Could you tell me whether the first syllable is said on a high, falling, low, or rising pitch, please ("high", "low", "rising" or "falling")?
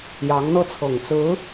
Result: rising